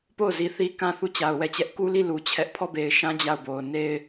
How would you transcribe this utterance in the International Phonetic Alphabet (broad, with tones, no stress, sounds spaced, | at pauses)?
p o˦˨ ʊ̯ z i˨ θ i˦ k ã˦˨ θ u˦˨ t͡ɕ a˨ ʊ̯ w ɛ˦˨ t͡ɕ ɛ˦ ʔ k u˦ l i˦˨ l u˨ t͡ɕʰ ɛ˦ ʔ pʰ ɔ˦˨ b e˨ ɪ̯ ʃ ã˦ d͡ʑ a˦˨ ʊ̯ b o˨ ʊ̯ n e˦ ɪ̯